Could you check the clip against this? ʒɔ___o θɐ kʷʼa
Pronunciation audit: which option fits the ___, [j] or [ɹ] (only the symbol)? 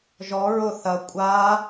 ɹ